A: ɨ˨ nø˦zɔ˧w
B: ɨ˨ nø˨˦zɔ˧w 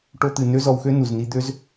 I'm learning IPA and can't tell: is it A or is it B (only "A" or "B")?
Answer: A